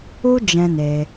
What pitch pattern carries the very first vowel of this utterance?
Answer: high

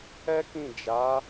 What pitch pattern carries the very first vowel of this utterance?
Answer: high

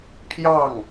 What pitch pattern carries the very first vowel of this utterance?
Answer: falling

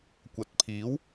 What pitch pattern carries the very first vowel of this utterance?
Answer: rising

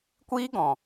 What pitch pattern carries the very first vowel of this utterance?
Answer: high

